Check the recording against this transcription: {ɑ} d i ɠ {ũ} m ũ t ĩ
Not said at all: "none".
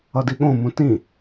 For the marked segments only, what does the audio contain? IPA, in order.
ʌ, õ

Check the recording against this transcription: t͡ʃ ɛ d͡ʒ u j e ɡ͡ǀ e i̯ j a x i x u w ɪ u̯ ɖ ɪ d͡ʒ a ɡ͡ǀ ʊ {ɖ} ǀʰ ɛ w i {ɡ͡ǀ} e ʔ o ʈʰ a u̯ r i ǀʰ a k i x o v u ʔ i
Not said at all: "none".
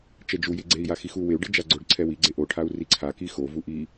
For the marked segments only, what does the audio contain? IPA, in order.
ɖ, ɡ͡ǀ

